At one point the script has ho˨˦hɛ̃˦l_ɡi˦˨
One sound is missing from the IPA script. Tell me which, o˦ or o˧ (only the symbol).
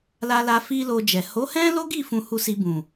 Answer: o˦